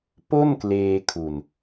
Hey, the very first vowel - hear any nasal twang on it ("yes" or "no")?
no